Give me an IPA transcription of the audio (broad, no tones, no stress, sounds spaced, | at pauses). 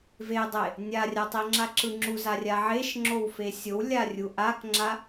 v e dˤ e | nʲ a rʲ a tˤ i ŋ͡ǁ a ǁ ɯ ŋ͡ǁ u z a rʲ a ʕ e ʃ ŋ͡ǁ o w f e sʲ o w lʲ a rʲ u ʔ a k ŋ͡ǁ a